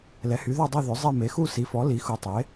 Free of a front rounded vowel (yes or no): no